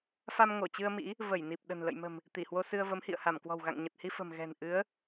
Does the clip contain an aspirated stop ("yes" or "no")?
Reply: no